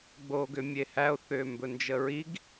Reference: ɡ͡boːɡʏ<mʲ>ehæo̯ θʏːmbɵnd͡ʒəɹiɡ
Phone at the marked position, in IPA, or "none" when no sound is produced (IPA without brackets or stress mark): mʲ